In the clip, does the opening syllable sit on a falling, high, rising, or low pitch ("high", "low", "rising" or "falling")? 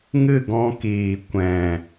falling